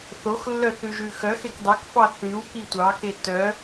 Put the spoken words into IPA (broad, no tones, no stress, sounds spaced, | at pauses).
θ o x lː œ θ ʉ ʒ ʉ x œ x e k dˤ œ k f ɑ θ ʉ w k i tʷ ɑ k e t œ